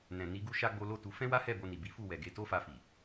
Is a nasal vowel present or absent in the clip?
present